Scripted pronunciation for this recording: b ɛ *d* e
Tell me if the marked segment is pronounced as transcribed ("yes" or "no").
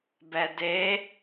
yes